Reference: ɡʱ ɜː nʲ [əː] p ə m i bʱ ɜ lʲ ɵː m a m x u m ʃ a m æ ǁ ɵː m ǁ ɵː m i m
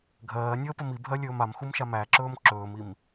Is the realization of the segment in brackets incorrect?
no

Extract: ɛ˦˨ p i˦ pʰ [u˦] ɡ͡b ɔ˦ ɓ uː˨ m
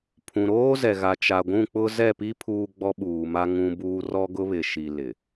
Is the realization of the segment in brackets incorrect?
yes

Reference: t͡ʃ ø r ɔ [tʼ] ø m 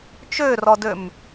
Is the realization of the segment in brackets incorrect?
yes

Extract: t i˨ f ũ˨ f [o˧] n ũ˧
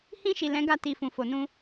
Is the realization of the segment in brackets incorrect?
yes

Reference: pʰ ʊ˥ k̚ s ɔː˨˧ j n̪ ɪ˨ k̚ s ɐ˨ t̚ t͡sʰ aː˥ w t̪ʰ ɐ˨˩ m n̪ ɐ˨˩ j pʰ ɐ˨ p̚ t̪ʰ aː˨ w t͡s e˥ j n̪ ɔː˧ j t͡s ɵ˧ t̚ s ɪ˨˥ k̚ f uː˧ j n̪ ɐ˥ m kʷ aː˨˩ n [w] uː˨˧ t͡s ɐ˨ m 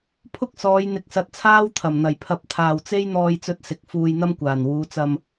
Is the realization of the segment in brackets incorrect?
no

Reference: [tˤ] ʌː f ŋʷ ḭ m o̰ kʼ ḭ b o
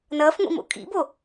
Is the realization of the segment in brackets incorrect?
yes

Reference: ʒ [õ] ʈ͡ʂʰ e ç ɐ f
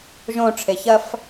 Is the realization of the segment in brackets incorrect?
no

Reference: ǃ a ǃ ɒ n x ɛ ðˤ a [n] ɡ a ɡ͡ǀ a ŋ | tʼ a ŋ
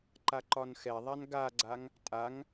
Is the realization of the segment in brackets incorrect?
no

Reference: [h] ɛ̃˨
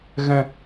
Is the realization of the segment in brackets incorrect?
yes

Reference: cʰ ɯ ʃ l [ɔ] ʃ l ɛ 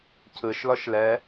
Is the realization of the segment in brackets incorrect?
no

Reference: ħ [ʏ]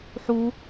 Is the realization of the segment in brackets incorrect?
yes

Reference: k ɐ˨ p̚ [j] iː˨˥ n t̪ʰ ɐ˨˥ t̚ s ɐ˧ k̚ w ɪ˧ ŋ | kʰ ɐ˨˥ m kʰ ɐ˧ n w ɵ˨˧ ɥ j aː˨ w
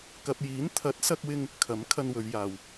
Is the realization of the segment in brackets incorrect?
no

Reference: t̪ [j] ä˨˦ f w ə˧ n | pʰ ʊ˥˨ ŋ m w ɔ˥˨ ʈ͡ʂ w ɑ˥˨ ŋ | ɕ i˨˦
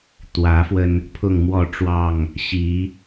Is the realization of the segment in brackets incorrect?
yes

